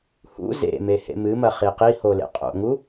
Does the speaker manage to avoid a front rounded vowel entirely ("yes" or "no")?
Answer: yes